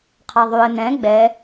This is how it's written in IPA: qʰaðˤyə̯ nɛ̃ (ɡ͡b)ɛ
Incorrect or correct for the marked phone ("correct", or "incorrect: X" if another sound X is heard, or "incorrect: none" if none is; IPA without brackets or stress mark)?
correct